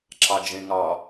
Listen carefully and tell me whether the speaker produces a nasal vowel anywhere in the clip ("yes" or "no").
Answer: yes